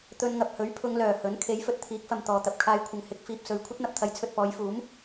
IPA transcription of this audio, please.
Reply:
t̪ ɵ˧ n ŋ ɐ˨ p̚ h ɵ˨˥ ɥ pʰ ʊ˨˧ ŋ l œː˨˩ h ɵ˨˥ n kʰ e˨˥ j f ɵ˨ t̚ t̪ʰ iː˨˥ k̚ f ɐ˨ m t̪ ɔː˨ t̪ ɐ˨ p̚ kʰ aː˧ j kʷʰ ɐ˨ ŋ h ɪ˨˥ k̚ f iː˨ p̚ s ɵ˨ ɥ kʷʰ ɐ˥ t̚ n̪ ɐ˨ p̚ t̪ʰ ɐ˨˥ j t͡sʰ ɵ˨ t̚ p ɔː˨˧ j f uː˨˥ m

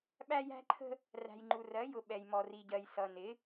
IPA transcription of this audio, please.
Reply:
ɓ æ˦ j æ̤˦ ǃʰ ə̤˦ | r æ̤˨ j ŋ͡ǃ u˨ r ɜ˨˦ j ʊ˨ ɓ ɛ˨ j m ɔ˨ r i˨ ɟ ɜ˨ j s ʌ˨ n ɪ˨˦

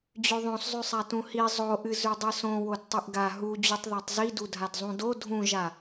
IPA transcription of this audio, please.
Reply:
d͡ʑ ʉ ðˤ õ s zˤ ʉ sˤ a t ũ h i zˤ o ʔ ɨ z ʉ dˤ ɨ s õ w o d tˤ ɨ ʔ ɡ a ɦ u d͡ʑ ʉ tˤ ð a tˤ z i d u dʱ a d zˤ ũ d o dʱ ũ ʒ a

